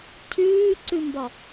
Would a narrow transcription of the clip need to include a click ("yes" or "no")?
yes